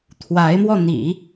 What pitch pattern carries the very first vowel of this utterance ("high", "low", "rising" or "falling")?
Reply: rising